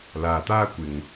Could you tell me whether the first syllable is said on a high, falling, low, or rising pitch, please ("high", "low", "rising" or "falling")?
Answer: low